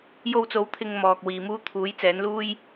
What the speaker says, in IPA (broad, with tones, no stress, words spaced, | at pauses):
jo˧wt͡so˨˥w t̪ʰɪ˨ŋ mɔː˨k̚ wiː˨muː˥ t̪ʰuː˨˥jt͡sɛː˨˥nluː˥j